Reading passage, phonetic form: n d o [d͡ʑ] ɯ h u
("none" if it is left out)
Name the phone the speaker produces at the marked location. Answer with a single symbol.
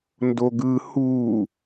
ɡ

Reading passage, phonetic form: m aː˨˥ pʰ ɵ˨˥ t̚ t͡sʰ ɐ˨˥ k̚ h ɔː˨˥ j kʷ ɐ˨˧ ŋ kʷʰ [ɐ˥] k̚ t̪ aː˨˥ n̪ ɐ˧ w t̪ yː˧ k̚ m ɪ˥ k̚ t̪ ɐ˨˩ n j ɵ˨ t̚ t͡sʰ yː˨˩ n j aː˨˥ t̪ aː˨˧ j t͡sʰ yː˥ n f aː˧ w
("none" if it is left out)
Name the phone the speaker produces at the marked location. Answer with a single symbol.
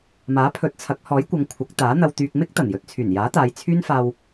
ɐ˨˥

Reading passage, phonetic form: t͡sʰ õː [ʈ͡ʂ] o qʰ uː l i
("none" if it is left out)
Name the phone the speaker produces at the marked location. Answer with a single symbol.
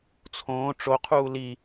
ʈ͡ʂ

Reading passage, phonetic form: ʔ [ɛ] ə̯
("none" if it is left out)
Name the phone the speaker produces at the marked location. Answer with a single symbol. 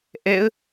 ɛ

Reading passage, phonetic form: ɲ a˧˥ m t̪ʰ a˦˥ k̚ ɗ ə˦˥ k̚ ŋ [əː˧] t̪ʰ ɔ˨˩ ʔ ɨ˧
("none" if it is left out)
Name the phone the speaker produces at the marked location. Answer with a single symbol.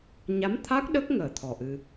əː˨˩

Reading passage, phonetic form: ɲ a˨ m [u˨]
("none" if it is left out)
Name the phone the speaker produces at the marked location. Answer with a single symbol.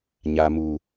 u˨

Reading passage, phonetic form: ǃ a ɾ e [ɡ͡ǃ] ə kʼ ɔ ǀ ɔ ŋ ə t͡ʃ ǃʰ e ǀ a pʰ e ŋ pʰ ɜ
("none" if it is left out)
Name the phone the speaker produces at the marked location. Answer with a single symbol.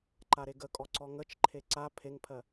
ɡ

